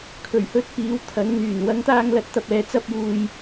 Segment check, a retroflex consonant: absent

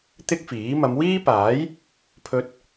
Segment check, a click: absent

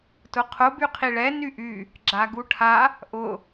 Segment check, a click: present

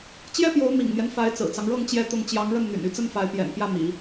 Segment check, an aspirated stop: absent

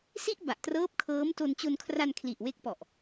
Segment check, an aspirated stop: present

